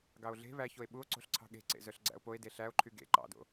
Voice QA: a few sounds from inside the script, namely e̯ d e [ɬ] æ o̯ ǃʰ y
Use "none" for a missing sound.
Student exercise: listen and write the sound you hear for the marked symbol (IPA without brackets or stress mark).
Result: ɬ